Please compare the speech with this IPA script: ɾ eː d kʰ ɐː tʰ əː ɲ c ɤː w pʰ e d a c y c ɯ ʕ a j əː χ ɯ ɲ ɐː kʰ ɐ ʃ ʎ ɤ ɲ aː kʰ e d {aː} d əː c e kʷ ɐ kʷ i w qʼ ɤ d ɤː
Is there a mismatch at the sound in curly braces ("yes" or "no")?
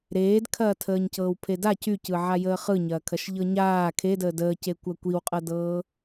yes